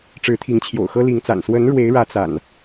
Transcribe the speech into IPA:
ʈ͡ʂɻ̩˨˦t̪ʰi˨˦ŋt͡ɕʰjo̰˨˩ʊ̯xɤ˦ li˨˦ŋt͡sa̰˨˩n swə˨˦n ɻwe˨˦ɪ̯ɻä˨˦ t͡sa̰˨˩n

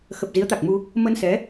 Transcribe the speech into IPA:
xə˨˩p̚zi˨˦ə̯t̪a˨˩k̚mu˧ | mə˧nsɛ˨˦

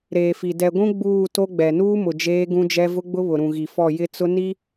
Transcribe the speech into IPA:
ɾeː˨fi˨ dɛ˨ɡʷũ˦ ɡ͡buː˦˨to˦ɡ͡bɛ˨ nuː˦mʊ˨ d͡ʒeː˦ɡũ˦d͡ʒɛ˦ vʊ˦ɡ͡bʊ˦βʊ˨ ɾũ˨ɣi˨fɔ˦˨ jɪ˦t͡sʊ˦ ni˦

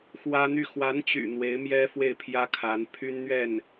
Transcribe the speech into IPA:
xwä˥n̪y˥˩ xwa˧˥nt͡ɕy̰˨˩ n̪we˧˥ɪ̯mjɛ˥ fwe˥˩ɪ̯pʰjä˥ kʰa˧˥n pʰy˥nn̪ɥɛ˥˩n

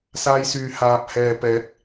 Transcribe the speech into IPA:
saː˧jsyː˨ haː˨p̚hɛː˨pɛː˨˥k̚

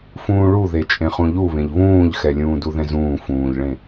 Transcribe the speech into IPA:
fũːɭuðe t͡ʃʼẽχũʎuβẽʎ βũːʎxɛ lʲũːduðɛ̃zũː fũːʎɭẽ

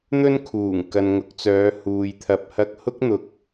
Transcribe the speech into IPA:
n̪ɵ˥n kʰuː˨˩ŋ kɐ˨nŋʊ˨˥k̚t͡sœː˨˧ huː˨jt̪ʰɐ˧p̚hɐ˥k̚ hʊ˥k̚n̪ʊ˨k̚

